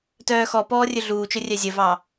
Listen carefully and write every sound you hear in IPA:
t œː x ɔ p ɔː rʲ ɵ ɮ uː t͡ʃ ɵ rʲ œ zʲ ə v ɑ

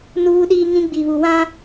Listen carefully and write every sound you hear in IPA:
n uː˦ ɗ iː˦ ŋ ĩ˦ ɡ͡b i˨ β u˨ w ã˦

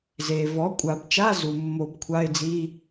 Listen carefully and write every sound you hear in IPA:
z eː˩ v ɔ˩˥ kʷʼ a˨˩˦ b t͡ʃ a˧˥˧ z u˩ mː o˨˩˦ b kʷʰ a˧˥˧ ɪ̯ d͡z i˧˥˧

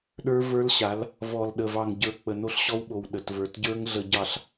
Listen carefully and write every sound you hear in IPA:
ɗ ə˞˦ v ə˞˦ l ɕ a˨˦ l | v ɔ˨ l ɗ ə˨ v ɑ˨ ŋ ɟ ə˞˨ k͡p ə˨ n o˦ ɬ ɕ ɔ˦ w ɓ o˨ w ɗ ə˨ t v ə˞˨ t ɟ ə˞˦ ŋ ɮ ə˨ ɟ ɑ˨ ɬ

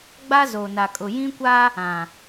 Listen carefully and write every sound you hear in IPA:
ɡ͡b a˦ z o˨ n a˨ kʼ ʊ˨ j ĩ˦ kʷ a˦ | ã˨

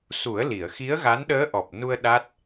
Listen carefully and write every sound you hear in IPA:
s u˨˩˦ ə̯ l i˨˩˨ ə̯ x i˧˥ ə̯ ɣ a˧˥ n ɗ əː˧˥ ʔ ɔ˨˩ p̚ n u˧ ə̯ ɗ a˦˥ t̚

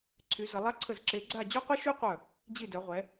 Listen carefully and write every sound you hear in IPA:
ǀʰ y˩˧ z ə˩˧ lˠ a˦˥ ǀʰ ə˧˩ z ǁ e˩˧ ɡ͡ǀ a˧˩ d͡ʑ o˦˥ qʷ i˦˥ ʃ y˦˥ qʷ œ˧˩ | d͡ʑ i˧˩ d œ˩˧ ʁʷ ɛ˩˧

